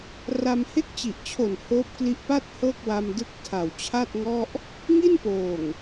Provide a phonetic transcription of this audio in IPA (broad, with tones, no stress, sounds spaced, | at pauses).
r a˧ m h e˥˩ k̚ t͡ɕ i˨˩ ʔ t͡ɕʰ o˨˩ n h oː˦˥ p̚ k l i˦˥ ʔ p a˥˩ t̚ h ɤː˥˩ k̚ w a˧ m d ɯ˦˥ k̚ tʰ a˨˩ w t͡ɕʰ a˥˩ t̚ ŋ ɔ˥˩ ʔ | ŋ i˥˩ n p oː˨˩ ŋ